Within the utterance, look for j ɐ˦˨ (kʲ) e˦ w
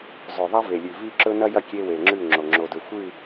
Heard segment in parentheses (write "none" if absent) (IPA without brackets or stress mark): kʲ